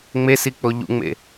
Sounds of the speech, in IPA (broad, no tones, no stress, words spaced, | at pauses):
ŋ͡mesik͡po ʎṵŋ͡mḛ